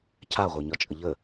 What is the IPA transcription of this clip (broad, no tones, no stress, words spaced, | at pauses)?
cʰaʁʷə˞ɲɒt͡ʃʼə ʎə